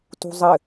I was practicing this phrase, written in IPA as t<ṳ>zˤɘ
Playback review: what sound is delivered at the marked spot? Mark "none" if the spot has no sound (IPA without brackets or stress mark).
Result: ṳ